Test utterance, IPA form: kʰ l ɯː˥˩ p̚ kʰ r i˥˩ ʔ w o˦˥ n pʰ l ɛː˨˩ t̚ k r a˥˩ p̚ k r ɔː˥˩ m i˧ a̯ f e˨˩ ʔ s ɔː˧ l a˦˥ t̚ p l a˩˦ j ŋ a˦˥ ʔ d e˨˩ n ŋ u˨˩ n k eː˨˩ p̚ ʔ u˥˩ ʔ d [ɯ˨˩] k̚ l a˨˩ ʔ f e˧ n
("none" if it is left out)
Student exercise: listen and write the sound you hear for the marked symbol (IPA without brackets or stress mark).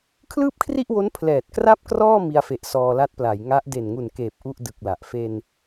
ɯ˨˩